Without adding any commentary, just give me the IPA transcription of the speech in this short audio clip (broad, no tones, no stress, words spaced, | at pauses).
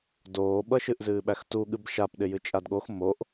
doːɓʌʃɨʔ zɨːɓæxtuɠɨb ʃap ɗɪjɨt͡ʃʼadɠox moʔ